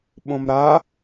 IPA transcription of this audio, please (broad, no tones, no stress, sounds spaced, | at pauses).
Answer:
ɓ õ m ɾ a